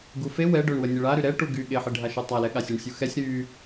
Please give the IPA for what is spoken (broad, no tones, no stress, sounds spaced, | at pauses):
ɡ u f e w ɛ ɖ ø ɳ w ə nʲ ə ɭ a ɾ y ɾ ɛ ʈ u ɡ y ɠ e ħ i ɖʱ a ʃ y tˤ a l ɛ ɠ a sʲ e ɳ sʲ u x ɛ sʲ ɾ y